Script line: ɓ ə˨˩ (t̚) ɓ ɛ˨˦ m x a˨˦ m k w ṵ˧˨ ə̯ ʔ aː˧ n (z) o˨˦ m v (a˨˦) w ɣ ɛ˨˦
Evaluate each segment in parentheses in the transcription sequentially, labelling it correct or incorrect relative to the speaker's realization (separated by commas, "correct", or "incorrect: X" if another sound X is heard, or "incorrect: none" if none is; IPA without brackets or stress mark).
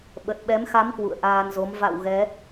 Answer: correct, correct, incorrect: a̰˧˨